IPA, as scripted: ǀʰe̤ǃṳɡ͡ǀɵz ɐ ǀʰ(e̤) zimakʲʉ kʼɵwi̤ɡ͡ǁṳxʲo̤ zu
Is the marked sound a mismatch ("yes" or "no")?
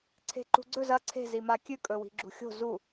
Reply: no